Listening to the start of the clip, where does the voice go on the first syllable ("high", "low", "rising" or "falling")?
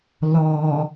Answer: low